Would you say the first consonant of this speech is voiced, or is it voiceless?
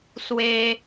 voiceless